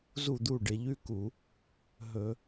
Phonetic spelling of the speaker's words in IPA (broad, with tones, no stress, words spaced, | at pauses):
zu˥˩d̪u˥˩ɖɪ˧˩˧ ʎʉ˦ku˧˩˧ | ɦɵ˧˩˧